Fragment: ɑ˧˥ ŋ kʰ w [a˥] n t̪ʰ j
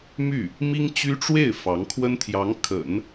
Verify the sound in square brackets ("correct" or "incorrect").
incorrect